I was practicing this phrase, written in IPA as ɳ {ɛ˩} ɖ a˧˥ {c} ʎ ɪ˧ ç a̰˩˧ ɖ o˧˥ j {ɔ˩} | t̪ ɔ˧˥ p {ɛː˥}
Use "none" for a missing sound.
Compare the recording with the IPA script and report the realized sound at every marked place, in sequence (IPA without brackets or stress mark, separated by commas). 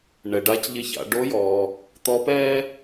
ɛ˩, c, ɔː˩, ɛː˥